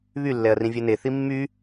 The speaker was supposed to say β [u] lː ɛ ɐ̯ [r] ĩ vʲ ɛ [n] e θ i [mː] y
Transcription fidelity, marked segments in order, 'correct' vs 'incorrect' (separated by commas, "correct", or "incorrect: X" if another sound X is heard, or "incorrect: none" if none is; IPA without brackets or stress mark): incorrect: y, correct, correct, correct